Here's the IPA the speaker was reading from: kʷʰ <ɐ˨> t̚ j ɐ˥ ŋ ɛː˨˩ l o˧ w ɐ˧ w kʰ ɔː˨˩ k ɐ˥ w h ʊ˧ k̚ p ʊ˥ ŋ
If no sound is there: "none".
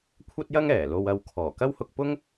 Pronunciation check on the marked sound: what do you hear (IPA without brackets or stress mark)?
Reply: ɐ˥